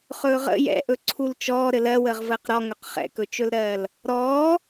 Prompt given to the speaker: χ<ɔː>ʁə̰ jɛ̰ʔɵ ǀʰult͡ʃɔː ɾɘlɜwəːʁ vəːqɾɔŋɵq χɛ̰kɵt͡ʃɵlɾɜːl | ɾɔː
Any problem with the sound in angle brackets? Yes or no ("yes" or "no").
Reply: yes